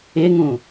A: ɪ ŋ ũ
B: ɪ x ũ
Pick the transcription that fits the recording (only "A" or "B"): A